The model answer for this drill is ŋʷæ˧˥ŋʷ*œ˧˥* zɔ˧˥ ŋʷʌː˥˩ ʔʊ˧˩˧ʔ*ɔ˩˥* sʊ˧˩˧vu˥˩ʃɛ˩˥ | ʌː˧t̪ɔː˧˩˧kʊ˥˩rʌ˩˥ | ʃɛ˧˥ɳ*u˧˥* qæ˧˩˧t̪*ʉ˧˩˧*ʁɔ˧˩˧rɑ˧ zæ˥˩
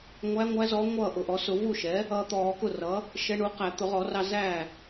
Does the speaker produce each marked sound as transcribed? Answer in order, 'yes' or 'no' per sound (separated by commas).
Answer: no, yes, no, no